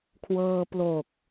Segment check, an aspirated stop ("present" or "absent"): present